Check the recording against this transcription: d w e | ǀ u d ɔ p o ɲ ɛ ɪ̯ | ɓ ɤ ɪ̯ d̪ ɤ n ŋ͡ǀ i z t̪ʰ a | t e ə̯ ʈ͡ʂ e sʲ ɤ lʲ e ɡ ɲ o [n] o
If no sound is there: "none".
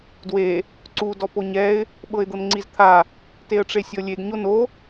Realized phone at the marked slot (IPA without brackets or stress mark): n